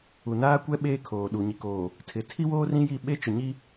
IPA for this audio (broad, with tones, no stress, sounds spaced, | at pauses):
u˨ n aː˦ kʷ ɛ˦ ɓ eː˦ kʰ oː˨ ɗ uː˨ ɲ i˨ k oː˨ | tʰ ɪ˨ tʰ i˦ w oː˦ r ĩ˦ j i˦˨ ɓ e˦ t͡ʃ ʊ˨ ɲ i˦